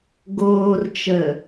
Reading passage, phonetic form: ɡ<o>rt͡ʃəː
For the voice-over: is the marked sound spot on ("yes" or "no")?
no